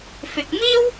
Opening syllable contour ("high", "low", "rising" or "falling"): low